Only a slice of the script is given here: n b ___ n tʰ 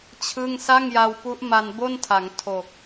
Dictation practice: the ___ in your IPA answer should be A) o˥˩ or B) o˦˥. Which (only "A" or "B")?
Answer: A